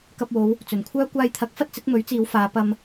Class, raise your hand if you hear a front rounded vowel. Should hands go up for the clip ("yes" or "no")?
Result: yes